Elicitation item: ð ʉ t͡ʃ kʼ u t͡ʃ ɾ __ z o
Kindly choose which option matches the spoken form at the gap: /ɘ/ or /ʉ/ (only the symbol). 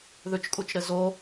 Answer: ɘ